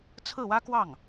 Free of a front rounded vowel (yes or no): yes